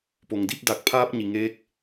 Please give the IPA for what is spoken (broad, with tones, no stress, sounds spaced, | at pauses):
p o˩ ŋ d i˥˨ p̚ d a˧˩ k̚ pʰ aː˧ p̚ ɲ i˩ ŋ eː˧˥ k̚